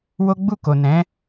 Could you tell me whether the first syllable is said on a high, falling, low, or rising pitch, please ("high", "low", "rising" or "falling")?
high